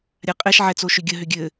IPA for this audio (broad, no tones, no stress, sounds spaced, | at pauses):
ɾʲ a qʼ ɛ ʃ ʕ ɛ t͡s o ʃ ʏ ɡʲ ə ɦ ʏ ɡʲ ɘ